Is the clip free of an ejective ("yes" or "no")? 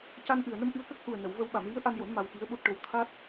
yes